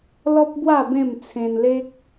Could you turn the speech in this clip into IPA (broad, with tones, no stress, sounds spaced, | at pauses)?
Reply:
l ɔ˦ p̚ b w a˥˧ b ẽ˥˧ m t͡sʰ ẽ˧ n l e˦ k̚